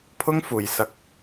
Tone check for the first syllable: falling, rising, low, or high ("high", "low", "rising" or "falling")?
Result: high